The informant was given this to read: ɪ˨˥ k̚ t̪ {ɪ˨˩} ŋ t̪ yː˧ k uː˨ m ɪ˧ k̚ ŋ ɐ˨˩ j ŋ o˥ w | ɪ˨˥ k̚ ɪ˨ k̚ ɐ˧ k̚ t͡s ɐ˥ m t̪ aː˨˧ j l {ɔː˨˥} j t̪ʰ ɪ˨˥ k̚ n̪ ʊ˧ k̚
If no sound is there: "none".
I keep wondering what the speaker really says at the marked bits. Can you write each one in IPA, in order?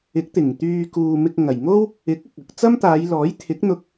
ɪ˨˩, ɔː˨˥

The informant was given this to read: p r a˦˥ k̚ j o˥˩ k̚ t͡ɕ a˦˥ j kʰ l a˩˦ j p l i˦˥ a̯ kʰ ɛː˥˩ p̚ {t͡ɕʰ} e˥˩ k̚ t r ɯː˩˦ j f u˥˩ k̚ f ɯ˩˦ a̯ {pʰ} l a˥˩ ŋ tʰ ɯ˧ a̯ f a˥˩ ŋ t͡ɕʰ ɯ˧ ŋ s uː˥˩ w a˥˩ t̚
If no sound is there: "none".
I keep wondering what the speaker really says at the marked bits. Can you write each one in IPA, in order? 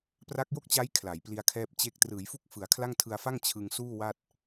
t͡ɕ, kʰ

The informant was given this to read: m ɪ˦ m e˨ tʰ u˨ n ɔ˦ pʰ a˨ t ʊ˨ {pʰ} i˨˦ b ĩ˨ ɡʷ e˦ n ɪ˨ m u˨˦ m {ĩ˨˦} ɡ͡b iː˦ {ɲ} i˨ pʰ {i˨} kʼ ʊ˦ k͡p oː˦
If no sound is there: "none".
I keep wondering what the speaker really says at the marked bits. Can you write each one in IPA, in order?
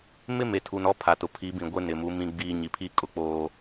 pʰ, ĩ˦, ɲ, i˦˨

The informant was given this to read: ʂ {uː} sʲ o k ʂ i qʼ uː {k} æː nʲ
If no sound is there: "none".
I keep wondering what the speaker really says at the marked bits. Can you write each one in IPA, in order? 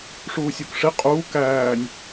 uː, k

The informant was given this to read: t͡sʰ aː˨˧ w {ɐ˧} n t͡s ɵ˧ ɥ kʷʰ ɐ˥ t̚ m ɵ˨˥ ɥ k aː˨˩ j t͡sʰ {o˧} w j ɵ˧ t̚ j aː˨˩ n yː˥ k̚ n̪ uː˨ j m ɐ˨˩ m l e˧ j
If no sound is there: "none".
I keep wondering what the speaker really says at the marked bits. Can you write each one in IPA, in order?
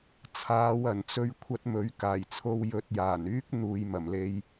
ɐ˨˩, o˧

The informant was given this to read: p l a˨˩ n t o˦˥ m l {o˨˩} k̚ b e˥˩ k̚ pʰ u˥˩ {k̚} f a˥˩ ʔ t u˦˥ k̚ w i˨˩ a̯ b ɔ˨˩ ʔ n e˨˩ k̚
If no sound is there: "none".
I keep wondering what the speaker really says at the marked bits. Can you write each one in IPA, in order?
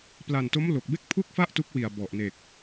o˨˩, k̚

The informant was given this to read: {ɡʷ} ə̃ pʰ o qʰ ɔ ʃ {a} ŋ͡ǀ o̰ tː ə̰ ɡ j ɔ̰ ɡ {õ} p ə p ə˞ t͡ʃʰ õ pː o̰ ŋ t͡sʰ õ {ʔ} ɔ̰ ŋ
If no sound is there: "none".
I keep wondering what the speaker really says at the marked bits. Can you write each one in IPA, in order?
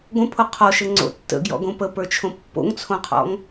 ɡʷ, ə, õ, qʰ

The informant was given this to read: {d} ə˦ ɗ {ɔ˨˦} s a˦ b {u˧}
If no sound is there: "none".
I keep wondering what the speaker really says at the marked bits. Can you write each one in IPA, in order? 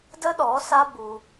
d, ɔ˨˦, u˧

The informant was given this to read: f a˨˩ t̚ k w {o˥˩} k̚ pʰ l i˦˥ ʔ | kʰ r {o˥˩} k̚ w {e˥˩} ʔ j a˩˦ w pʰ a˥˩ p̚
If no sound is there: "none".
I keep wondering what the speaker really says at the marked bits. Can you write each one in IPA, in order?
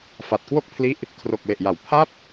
o˥˩, o˨˩, e˨˩

